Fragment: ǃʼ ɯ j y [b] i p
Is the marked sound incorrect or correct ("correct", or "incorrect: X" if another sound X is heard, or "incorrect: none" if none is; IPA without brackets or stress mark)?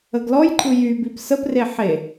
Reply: correct